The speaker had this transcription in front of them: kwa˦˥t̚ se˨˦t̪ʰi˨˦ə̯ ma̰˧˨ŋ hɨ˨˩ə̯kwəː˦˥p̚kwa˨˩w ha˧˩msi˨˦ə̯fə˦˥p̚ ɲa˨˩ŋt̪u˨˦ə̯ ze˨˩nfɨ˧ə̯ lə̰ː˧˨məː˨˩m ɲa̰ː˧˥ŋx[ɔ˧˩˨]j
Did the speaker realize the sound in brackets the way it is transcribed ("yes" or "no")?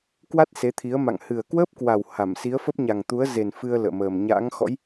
no